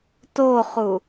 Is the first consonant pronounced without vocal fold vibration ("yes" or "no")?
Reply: yes